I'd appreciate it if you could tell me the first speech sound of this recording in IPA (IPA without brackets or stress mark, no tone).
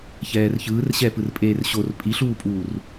ç